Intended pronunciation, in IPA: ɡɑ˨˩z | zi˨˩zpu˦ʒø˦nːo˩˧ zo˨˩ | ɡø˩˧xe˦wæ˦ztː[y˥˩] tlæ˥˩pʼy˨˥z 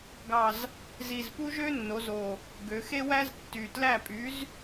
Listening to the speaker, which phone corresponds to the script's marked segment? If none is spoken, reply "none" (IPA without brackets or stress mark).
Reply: y˨˩